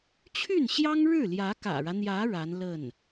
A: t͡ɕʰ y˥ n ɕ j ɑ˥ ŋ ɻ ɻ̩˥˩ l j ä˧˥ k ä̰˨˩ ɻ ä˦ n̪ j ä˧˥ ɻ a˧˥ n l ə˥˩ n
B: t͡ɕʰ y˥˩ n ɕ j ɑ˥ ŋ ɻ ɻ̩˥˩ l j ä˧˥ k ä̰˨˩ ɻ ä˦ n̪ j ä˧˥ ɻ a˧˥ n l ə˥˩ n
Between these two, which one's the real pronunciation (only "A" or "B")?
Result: B